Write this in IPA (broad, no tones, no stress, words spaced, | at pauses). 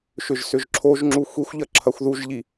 ʃʏʒsʏʒǁʰoʒŋ͡ǁu xʷixʷʎɐ ǁʰɐxʷðuʒʎi